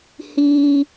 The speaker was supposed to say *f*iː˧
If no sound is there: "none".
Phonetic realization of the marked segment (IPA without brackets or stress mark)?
h